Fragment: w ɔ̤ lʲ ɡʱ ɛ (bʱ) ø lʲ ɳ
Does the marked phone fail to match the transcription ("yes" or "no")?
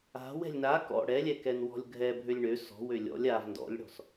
no